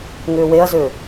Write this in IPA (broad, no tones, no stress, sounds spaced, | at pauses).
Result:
ŋ ʏː w e ɐ̯ z ʏː